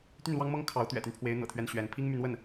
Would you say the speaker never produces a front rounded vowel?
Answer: no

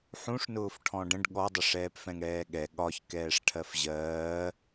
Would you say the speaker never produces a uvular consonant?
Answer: yes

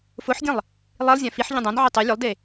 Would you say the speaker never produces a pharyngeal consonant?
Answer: no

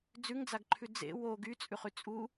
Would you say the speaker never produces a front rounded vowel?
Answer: no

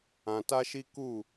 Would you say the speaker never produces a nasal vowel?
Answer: no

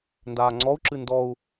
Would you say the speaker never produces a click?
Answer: no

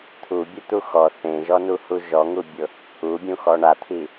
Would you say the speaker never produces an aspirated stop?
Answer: no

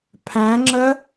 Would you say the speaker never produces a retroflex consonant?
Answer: yes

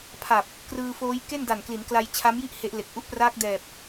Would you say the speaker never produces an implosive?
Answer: yes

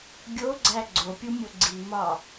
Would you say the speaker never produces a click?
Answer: no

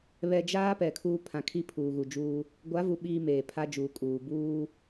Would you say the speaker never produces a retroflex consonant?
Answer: yes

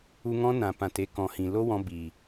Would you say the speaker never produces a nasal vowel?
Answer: no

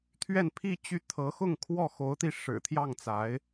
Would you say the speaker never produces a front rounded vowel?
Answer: no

